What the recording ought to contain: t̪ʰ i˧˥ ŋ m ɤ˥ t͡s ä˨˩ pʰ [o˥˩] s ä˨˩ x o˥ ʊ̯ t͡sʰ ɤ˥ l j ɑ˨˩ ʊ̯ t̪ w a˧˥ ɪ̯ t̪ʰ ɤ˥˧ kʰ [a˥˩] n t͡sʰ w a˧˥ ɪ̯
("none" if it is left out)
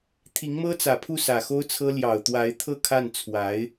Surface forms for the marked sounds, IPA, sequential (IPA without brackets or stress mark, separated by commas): u˥˩, a˥˩